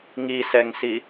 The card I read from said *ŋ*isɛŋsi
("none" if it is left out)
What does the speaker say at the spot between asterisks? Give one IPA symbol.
ŋ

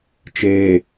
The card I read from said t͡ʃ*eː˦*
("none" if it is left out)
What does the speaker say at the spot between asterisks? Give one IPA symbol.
eː˨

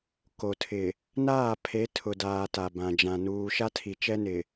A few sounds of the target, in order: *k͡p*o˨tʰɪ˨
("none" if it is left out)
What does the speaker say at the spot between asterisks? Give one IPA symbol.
k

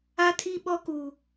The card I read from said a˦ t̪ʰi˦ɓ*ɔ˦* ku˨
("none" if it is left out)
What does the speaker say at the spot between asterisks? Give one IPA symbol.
ɔ˦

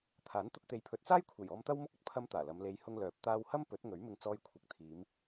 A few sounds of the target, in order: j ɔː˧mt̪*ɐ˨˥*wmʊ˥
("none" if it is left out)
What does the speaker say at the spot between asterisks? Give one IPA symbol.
ɐ˥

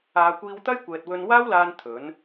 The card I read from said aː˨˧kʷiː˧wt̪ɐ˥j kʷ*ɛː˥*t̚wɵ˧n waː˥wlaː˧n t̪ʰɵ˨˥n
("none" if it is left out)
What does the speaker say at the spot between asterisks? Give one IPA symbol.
ɛː˨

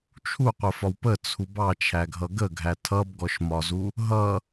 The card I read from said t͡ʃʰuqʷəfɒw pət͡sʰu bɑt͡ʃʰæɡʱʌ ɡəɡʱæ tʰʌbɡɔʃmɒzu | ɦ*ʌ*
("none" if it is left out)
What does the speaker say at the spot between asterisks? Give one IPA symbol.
ʌ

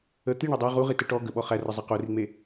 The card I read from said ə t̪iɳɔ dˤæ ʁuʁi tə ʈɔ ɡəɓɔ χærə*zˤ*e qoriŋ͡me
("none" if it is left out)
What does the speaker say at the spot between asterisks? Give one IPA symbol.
zˤ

